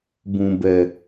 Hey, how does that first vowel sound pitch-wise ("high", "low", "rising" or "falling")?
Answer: low